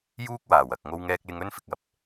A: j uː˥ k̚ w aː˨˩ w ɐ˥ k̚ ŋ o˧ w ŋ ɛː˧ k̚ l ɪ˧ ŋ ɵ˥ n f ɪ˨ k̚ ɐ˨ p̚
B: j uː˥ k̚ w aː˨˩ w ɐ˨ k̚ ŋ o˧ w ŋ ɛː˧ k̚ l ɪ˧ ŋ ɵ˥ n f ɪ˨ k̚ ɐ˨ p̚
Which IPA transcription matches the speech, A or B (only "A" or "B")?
B